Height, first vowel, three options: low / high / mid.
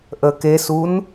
mid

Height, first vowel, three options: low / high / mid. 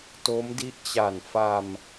mid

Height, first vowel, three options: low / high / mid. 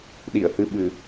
high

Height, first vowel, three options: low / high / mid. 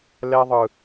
mid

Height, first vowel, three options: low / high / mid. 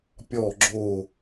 mid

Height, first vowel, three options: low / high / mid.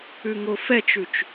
high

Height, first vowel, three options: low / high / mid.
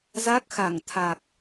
low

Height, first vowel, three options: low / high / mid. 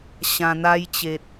low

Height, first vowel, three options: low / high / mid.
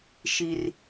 high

